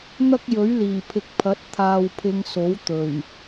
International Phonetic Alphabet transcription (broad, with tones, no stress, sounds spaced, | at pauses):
n̪ ɐ˥ k̚ j ɵ˨˥ ɥ l iː˨˩ pʰ ɪ˨ k̚ pʰ ɐ˨˥ t̚ t̪ʰ aː˨ w pʰ ɪ˨˧ ŋ s o˨˥ w t̪ ɵ˨˩ ɥ